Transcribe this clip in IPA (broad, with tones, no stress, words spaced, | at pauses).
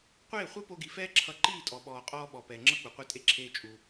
qʷeː˦˨χʷɛ˦po˧ɡi˨ fɛː˦ǁʰʌ˧ǃiː˦˨tʼɔ˨ ɓɔː˨qʼɔː˧ ɓɔ˨ pɛː˨ŋ͡ǁʌ˦ k͡pu˨qʷe˦tʼe˦ ǁʰeː˦t͡ʃʼu˧